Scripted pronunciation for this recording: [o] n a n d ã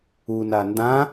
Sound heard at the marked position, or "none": u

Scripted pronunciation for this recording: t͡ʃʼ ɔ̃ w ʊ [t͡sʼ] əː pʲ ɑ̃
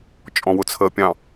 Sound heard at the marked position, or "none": t͡sʰ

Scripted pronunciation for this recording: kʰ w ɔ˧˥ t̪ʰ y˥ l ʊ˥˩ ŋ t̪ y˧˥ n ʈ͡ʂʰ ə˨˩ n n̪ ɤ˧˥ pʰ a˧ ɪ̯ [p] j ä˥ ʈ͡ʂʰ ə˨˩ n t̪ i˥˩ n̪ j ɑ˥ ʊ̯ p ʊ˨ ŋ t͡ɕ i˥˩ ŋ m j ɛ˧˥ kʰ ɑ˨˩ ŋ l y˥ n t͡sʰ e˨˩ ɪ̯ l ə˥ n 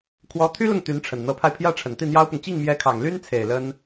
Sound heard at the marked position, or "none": pʰ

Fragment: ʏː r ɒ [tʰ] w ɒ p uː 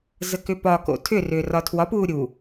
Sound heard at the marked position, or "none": tʰ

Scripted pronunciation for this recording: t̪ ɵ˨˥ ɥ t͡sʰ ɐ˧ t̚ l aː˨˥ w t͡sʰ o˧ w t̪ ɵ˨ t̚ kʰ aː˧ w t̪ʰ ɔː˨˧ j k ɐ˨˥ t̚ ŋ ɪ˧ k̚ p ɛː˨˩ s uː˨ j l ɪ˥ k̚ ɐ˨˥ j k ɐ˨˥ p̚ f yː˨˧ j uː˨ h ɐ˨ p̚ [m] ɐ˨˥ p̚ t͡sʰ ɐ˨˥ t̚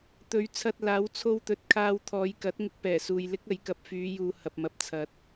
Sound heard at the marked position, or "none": m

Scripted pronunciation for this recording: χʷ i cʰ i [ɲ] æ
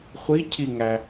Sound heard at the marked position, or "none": ŋ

